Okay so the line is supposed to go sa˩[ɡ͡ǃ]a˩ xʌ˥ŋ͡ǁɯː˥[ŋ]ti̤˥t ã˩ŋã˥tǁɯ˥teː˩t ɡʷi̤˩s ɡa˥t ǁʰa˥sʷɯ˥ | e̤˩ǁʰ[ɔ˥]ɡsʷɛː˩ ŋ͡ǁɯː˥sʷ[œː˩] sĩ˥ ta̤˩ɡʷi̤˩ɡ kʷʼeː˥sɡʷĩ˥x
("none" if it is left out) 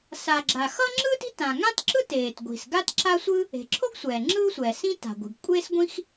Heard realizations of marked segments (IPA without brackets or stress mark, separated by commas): ɡ͡ǁ, none, o˥, ɛː˩